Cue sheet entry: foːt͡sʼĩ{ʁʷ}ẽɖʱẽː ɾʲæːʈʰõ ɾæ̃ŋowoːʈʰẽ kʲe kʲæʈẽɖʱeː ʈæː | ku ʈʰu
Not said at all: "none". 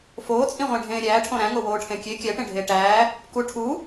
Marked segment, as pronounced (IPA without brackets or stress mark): ʁʷ